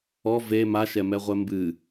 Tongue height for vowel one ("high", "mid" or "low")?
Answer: mid